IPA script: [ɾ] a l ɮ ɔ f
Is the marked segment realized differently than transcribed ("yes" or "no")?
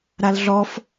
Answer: no